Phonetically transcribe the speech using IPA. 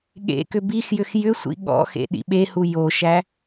ɠḛkʏ bixjʏx jʏsʷḭ ɠɔ̰xḛ ɗḭɓehu joʃæ

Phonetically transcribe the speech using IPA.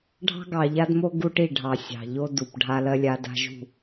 ɖʱɑ̤˦ɡɑ˨ʎa˦dmo˦ ɡu˦ʈi˦˨ɖʱɑ˨ sʲɑ̤˨ʎo˦ du˨p ɖʱa˦lɜ˦lʲa˦da̤˦ ʒṳ˦˨

